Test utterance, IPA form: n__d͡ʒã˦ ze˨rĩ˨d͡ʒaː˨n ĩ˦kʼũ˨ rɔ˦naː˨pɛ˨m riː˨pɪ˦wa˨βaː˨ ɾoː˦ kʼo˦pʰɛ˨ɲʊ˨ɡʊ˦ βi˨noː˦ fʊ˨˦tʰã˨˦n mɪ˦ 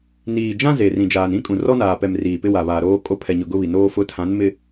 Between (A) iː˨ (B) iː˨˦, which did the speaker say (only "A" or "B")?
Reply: A